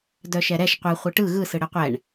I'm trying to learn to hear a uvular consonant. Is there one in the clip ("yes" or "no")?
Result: yes